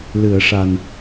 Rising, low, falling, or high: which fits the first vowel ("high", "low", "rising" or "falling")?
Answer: low